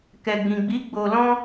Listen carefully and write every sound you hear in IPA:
k ɛ˨ ɡ͡b ĩ˨ ɡ͡b i˨˦ ɡ͡b o˧ l ɔ̃˦

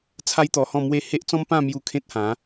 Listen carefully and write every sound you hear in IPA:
t͡sʰ a˦ j t̪ ɔ˧ h ɔ̃˥˧ m w e˥˧ h e˦ ʔ t͡s ɔ̃˦ m p ã˥˧ m j u˧ kʰ ẽ˦ t̚ h ã˨˦

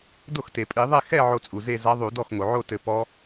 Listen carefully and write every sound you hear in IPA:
d o˥˩ x t e˩ pʼ i˧˩˧ ðˤ ɛ˥˧ x ɛ˥˧ ʕ o˧˥ t͡sʼ u˩ z e˥˧ z a˧˥ ðˤ u˧˩˧ d ɔ˥˩ x ŋ o˩ ʕ o˥˧ t ɘ˧˩ p ɔ˧˥

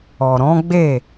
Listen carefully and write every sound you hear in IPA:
ɔ˨ ɾ ɔ̃˨˦ ɡ͡b e˦˨

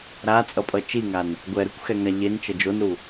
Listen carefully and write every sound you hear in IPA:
ɾ a t͡sʼ ʌ pʼ ʌ t͡ʃ i ŋ a n | ɡʷ ɛ ɾ ɯ kʷ x ɛ ŋ a ʎ e n t͡ʃ ʌ d͡ʒ o n ɾ u

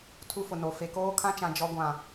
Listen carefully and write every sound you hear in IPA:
tʰ u˦ f ʊ˨ n o˨ f e˨ k oː˦ kʰ ã˦ t͡ʃ ã˨ d͡ʒ ɔ˦ ɡʷ ã˦˨

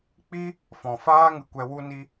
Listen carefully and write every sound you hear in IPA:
k͡p i˦ | f ɔ̃˨ f aː˦ ŋ ɨ˨ kʷ ɛ˧ w u˦ n i˦

